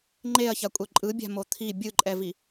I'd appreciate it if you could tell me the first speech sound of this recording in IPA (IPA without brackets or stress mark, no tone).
ŋ͡ǃ